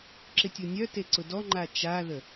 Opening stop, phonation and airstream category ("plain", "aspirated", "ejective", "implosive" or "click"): click